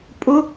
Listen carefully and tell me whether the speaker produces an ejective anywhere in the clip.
yes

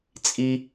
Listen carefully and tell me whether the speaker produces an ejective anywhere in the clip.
yes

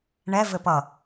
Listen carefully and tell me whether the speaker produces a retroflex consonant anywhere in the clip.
yes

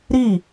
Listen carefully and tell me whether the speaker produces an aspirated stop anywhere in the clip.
no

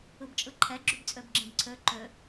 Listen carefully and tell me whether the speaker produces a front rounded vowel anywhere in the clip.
yes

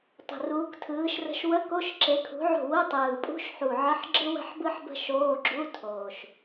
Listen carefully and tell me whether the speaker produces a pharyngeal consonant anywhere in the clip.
yes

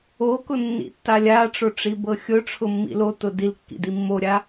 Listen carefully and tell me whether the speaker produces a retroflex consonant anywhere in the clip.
yes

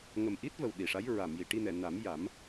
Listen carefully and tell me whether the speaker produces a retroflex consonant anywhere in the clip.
yes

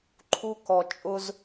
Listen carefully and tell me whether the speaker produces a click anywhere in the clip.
yes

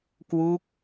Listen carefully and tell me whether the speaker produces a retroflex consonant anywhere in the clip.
no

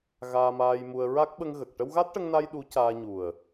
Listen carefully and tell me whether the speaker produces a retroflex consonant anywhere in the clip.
yes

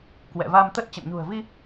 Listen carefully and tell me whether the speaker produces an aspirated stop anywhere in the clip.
no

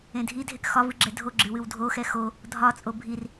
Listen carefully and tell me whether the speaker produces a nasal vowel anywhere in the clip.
yes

